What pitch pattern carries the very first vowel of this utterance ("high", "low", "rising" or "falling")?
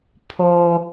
low